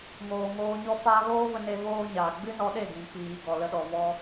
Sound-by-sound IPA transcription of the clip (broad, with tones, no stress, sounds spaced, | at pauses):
ŋ oː˨ ŋ oː˧ ɲ ɔ˦ f aː˦ ɣ oː˦ v ə˧ n e˧ v oː˦ ɲ aː˨ ɡ͡b ɨ˦ n ɔ˧ ɗ e˦˨ ɡ ĩ˨ k͡p iː˨ ɡ ɔ˨ l ə˧ ɗ ɔ˨ v ɔ˧